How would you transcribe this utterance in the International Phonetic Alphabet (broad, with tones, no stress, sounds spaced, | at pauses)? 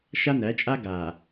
ʃ a˦ n æ˨˦ t͡ʃʼ a˦ ɡ a˨